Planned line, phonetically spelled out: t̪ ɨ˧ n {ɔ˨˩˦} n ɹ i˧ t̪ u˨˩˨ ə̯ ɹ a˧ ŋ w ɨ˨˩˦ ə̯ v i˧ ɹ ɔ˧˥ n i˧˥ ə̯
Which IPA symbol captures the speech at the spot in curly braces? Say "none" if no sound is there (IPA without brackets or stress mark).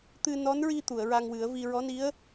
ɔ˧˥